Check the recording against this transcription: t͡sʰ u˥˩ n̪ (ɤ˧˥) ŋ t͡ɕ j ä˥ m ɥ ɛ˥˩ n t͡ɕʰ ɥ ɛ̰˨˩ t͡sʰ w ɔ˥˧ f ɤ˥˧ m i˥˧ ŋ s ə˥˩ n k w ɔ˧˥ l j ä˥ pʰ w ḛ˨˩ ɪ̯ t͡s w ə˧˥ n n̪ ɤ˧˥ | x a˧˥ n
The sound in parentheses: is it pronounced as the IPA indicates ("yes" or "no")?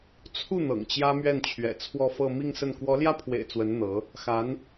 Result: no